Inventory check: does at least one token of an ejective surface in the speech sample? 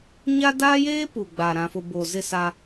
no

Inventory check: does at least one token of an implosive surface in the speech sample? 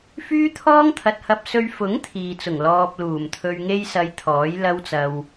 no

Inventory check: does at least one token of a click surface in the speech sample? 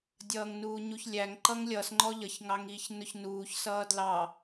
yes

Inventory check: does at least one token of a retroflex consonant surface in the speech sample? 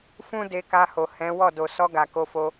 no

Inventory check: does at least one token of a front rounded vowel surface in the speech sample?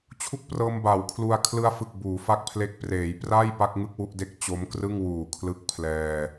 no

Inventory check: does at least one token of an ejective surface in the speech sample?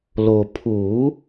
no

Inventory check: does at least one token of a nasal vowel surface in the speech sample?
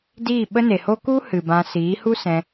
yes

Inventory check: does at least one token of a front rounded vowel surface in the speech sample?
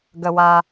no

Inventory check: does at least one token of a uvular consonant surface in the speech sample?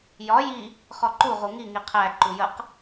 yes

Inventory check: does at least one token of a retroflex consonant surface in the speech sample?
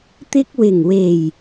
no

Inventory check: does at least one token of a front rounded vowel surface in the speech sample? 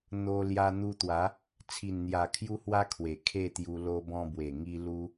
no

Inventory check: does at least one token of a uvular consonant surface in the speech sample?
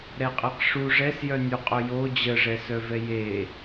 yes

